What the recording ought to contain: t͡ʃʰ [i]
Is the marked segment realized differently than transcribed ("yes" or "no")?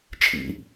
yes